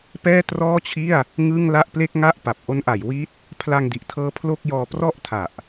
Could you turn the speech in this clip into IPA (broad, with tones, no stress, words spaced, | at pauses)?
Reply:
pɛː˥˩trɔː˥˩t͡ɕʰi˥˩a̯ | ŋɯ˥˩ŋla˥˩ʔ ple˥˩k̚ŋa˥˩ʔ pa˨˩p̚ ʔo˦˥nʔa˩˦j wi˦˥t̚ | pʰla˧ŋdi˨˩ʔtʰɤː˦˥ pʰlo˥˩k̚ jɔː˧prɔ˥˩ʔtʰa˨˩ʔ